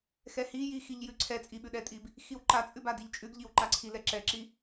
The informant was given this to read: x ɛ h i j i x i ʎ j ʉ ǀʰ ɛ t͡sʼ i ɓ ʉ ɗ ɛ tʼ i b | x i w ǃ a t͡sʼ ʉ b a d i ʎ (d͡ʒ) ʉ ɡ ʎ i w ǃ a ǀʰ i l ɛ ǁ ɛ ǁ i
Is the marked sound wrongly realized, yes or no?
yes